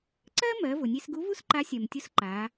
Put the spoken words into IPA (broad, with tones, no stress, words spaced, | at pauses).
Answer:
ǀɜ˥mɜ˩˧ vʊ˩nʲe˧sɡu˧˥vu˥s ǃa˧˥sʲɜ˩mtʲʊ˧˥s ǃa˩˧